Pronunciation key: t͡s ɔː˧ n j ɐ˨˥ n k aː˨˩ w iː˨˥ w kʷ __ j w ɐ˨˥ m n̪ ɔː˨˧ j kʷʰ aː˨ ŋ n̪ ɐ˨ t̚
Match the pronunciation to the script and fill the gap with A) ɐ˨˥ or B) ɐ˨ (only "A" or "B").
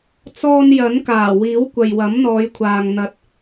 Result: B